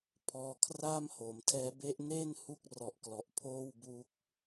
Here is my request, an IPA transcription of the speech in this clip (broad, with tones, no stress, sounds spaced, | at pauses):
pʰ ɔː˧ kʰ r aː˥˩ m h o˩˦ m tʰ ɛː˦˥ b e˦˥ ʔ n e˥˩ n h u˥˩ k̚ r ɔ˨˩ ʔ k l ɔ˨˩ ʔ pʰ oː˥˩ w b u˦˥ k̚